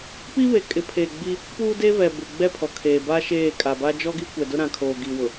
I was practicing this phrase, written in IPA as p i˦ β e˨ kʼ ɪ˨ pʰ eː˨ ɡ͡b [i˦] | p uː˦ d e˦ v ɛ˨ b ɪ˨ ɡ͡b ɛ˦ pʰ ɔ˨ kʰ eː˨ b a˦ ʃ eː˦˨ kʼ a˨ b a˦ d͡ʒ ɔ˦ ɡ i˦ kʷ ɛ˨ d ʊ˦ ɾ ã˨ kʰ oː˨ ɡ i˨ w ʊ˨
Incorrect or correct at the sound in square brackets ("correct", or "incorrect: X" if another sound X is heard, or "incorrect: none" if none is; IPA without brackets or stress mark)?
correct